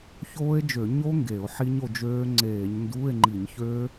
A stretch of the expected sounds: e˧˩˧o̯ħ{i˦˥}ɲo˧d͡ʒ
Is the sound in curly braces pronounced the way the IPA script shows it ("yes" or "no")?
yes